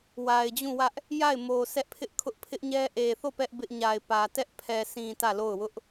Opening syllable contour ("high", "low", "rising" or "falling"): low